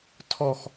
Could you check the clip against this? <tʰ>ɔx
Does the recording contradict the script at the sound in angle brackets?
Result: no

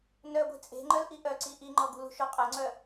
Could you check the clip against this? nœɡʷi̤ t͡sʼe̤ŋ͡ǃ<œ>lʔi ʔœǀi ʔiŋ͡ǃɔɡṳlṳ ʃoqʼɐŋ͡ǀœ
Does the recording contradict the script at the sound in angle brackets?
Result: no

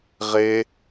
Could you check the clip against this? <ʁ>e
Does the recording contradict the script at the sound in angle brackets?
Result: no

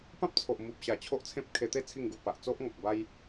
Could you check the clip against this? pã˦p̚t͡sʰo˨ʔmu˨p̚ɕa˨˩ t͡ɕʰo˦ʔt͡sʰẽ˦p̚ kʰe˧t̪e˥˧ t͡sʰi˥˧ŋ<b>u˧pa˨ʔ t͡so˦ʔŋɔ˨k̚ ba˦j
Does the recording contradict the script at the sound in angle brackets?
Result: yes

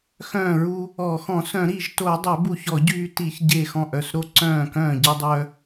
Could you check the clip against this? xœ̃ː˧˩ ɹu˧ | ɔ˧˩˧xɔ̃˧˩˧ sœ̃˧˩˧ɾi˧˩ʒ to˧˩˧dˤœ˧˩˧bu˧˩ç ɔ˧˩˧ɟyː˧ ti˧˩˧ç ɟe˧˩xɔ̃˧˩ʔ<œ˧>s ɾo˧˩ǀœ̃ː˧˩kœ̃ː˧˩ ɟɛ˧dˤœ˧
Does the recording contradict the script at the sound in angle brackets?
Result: yes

